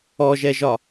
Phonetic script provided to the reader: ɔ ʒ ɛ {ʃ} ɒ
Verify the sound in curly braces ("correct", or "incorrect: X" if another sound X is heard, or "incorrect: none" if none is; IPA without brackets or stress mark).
incorrect: ʒ